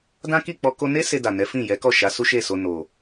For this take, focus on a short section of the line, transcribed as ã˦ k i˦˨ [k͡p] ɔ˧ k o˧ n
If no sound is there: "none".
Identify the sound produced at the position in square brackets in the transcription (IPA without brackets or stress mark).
k͡p